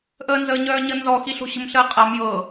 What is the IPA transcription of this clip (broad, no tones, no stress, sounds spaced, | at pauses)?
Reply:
ʔ əː n z əː ɲ œː ɲ ə n z ɔ x i ɬ o̤ ɕ ə̤ m ɬ əː qʼ a m j ɤ